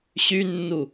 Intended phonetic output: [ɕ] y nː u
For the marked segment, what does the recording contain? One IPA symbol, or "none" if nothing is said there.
ɕ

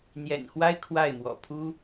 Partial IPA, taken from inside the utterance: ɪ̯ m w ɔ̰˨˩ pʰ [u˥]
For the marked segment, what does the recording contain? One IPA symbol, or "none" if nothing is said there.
u˥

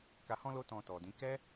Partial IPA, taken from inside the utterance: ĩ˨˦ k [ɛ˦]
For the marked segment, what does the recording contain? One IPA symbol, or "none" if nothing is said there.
ɛ˦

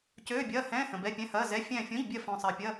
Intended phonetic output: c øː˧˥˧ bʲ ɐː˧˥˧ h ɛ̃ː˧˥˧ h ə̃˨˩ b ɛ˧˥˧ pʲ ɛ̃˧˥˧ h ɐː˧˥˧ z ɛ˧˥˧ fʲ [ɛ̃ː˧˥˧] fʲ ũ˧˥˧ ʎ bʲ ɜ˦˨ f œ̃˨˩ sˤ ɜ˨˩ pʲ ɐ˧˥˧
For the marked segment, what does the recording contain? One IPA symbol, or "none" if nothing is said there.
ɛ̃ː˦˨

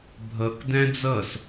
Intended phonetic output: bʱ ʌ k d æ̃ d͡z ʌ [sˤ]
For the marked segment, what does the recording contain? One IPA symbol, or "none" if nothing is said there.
s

